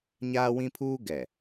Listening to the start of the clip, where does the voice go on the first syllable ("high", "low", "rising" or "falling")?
high